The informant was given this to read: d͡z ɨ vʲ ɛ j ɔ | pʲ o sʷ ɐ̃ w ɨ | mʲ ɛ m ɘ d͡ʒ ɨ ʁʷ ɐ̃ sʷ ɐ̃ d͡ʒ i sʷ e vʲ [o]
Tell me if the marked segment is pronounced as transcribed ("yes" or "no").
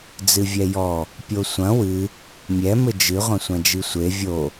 yes